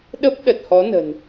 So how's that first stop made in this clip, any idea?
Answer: implosive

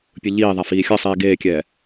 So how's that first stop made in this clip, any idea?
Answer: plain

